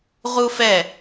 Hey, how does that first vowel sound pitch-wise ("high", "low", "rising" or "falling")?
high